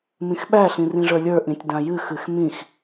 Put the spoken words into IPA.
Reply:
m ĩ x ɓ æ ɬ ĩ r ĩ ʐ ə˞ lʲ ə˞ ʔ ĩ tʲ d ã j ɨ x ɨ x m ĩ x

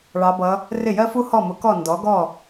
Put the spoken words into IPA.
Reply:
ɭ ɑ˧˥ b ʌ˧˥ | r ɪ˥˩ j ɜ˥ f u˥ h ɔ˥˩ m ʊ˩˥ k ɔ˥˩ n d ɔ˩˥ ɡ ɔ˥˩

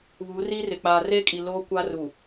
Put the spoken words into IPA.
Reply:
β u˨˦ r i˦ r ɪ˨ k͡p aː˨ r e˦ kʼ i˨ l oː˦ kʷ aː˦ r u˨

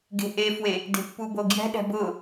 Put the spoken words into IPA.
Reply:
ɡ e̤ ʔ e f w e | d e̤ pː u b o ɡ j ɛ̤ ɗ ɛ̤ b ʊ

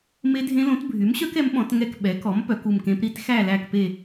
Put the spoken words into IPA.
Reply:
m e˦˥ dʱ ẽ˦˥ l õ˩˥ t bʱ y˩˥ m ɕ œ˦˥ k ɛ˩˥ m ɓ ɔ̃˩˥ t ŋ ɛ˥˧ k ɓ ɛ˩˥ k ɔ˩˥ m p œ˩˥ k u˥˧ m k ẽ˦˥ p ɾ i˦˥ t x æ˥˧ l æ˥˧ k p e˥˧

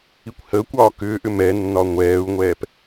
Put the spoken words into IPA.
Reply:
i kʷ h əː kʷ ɒː k ʏː ʔ ʏ m ɛ nː ɒ ŋʷ ɛː u̯ ŋʷ ɛː p

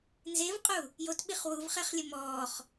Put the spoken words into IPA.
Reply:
n z e v qʼ u | j o t ɓ i χ w u v χ ɛ χ lʲ ɘ m ɔː χ

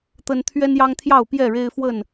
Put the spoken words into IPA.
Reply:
t̪ ə˦ n t̪ʰ ɥ ɛ˦ n j ɑ˦ ŋ t̪ʰ j ɑ˥˨ ʊ̯ p j ɛ˥˨ ɻ e˦ ɪ̯ f w ə˥˨ n

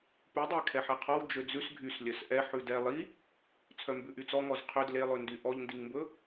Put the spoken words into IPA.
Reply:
p ʉ dˤ e kʰ ɛ ħ ɛ qʰ ɔ w d͡ʒ ø d͡z ʉ s ɡʱ y s lʲ œ s ʔ ɛ ħ ʉ d ɛ lˠ i | t͡sʰ œ m b ʉ ʔ y t͡s ɔ ŋ ɔ z qʰ ø d l e lˠ ɵ n d y ʔ ɔ ʎ n d i ŋ m b ɵ

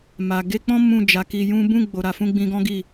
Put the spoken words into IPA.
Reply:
m a˨ ɡ e˧ k͡p ɔ̃˦ m ũ˦˨ d͡ʒ a˨˦ k i˧ j ũ˦ b ũ˦˨ ɡ͡b o˨ ɾ a˨ f ũ˧ ɡ͡b ĩ˧ ɡ ɔ̃˦ ɡ i˦˨

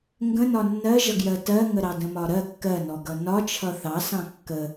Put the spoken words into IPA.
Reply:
ŋ ɡ ə̃ n ɒ nː ɜ ʒ ʌ ɡ j ɜ t ɜ ŋ ə ɾ ɑ d ə̃ m ɒ ɾ ɜ kː ɜ n ɔ ɡ ʌ n ɒ t͡ʃʰ ʌ θ ɑ s ɑ̃ kː ə

